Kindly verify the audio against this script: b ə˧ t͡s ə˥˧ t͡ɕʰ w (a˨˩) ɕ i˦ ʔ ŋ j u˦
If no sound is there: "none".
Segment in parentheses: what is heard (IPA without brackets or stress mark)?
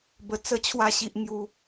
a˥˧